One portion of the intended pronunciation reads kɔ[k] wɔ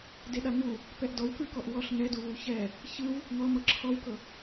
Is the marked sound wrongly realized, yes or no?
yes